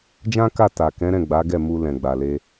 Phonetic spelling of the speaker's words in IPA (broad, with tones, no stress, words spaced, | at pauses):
d͡ʒã˦ka˦˨ ta˨ kɛ̃˨˦ɾɛ̃˦˨ ɡ͡ba˨˦ɡɛ˦˨ mu˧ lɛ̃˨ɡ͡ba˨le˧